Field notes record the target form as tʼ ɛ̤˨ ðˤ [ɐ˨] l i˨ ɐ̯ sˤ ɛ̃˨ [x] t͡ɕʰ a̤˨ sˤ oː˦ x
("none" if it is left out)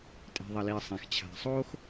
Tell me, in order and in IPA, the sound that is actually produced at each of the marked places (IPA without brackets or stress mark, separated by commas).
ɐ˨, x